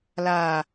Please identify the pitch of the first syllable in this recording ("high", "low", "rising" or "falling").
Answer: low